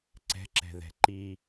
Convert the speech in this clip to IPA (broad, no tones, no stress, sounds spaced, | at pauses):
ǀ ɛ̤ ǁ ɛ̤ ð ɛ̤ ǃ i